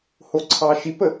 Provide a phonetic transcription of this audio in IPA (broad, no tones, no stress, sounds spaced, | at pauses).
h o ǀʰ ɑ ʃ i p ə